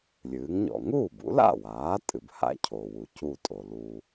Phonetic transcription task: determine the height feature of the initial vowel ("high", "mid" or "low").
high